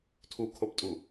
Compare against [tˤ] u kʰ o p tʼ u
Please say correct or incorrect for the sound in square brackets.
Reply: incorrect: tʰ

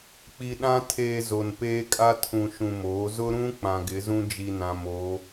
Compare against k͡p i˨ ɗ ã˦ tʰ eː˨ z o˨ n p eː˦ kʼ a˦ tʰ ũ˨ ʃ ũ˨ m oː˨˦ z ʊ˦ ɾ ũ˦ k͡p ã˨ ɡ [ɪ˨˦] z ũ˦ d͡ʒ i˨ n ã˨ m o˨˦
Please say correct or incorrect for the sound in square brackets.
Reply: correct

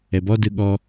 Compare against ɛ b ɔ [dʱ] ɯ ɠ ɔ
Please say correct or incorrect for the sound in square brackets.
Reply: incorrect: d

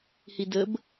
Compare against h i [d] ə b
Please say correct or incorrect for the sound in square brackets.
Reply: correct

